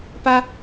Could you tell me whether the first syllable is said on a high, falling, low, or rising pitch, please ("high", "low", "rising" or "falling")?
high